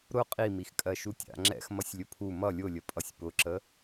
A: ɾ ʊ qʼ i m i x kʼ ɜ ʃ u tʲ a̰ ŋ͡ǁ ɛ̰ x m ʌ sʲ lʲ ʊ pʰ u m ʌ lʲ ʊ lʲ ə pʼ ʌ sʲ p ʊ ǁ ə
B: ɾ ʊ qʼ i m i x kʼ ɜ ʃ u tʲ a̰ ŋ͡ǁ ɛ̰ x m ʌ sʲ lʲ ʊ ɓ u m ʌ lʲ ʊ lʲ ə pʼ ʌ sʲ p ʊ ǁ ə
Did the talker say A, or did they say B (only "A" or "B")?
A